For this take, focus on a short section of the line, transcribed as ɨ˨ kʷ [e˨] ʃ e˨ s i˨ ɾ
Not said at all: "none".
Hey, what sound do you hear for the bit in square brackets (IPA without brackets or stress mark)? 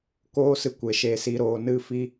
e˨